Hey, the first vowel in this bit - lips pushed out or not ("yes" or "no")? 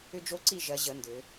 yes